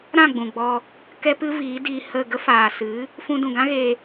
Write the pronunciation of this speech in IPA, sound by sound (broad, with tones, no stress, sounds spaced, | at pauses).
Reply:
ɾ ã˦˨ ɡ͡b ũ˨ ɡ͡b ɔ˧ | k ɛ˦ p ɨ˦ v iː˨˦ d iː˧ h ə˦˨ ɡ ə˦ f aː˨ s ɨ˨˦ | f ũ˧ d ũ˨ ɡ ã˦ ɣ eː˧